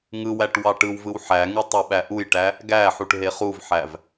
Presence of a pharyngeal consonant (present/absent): present